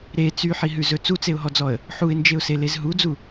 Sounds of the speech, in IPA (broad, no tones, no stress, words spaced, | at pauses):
ɾe t͡syħiɦʉzɵ t͡sut͡seʊ̯ɦɔd͡zɔə̯ | ħuɪ̯nd͡ʒeʊ̯selez ɦud͡zu